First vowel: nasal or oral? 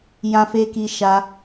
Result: nasal